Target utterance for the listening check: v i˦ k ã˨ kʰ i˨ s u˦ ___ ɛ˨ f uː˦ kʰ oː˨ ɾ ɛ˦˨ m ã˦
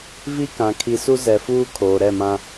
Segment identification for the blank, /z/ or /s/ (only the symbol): z